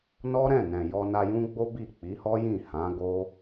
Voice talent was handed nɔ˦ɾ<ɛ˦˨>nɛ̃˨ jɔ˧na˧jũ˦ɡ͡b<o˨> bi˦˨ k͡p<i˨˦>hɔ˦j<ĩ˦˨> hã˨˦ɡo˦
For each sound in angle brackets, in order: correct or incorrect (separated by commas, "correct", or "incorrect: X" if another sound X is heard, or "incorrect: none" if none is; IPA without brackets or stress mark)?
incorrect: ɛ̃˦˨, incorrect: o˦, correct, correct